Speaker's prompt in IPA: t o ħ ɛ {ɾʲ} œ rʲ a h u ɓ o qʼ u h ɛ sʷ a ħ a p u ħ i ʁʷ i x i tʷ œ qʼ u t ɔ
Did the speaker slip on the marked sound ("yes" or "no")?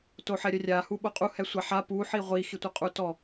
no